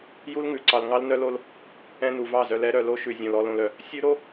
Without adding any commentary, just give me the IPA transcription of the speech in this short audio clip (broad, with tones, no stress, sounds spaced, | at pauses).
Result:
j u˦ l ŋ ʉ˨ ǀ ɑ˧ l ŋ ɑ˦ l n œ˦ l o˦ l | ɛ̃˧ n u˨ v ɑ˦˨ z œ˧ l ɛ˦ ɾ œ˨˦ l o˦ ʃ ʉ˨ zʲ õ˨ l ɔ˨ l õ˨ l œ˨ | sʲ ʉ˦ ɾ o˦